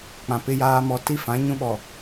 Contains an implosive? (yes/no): yes